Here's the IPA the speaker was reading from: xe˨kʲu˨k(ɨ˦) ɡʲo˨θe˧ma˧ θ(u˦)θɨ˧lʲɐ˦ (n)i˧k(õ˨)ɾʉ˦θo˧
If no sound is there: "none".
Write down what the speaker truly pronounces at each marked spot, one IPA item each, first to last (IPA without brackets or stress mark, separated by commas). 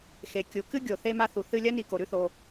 ɨ˦, u˨, n, o˨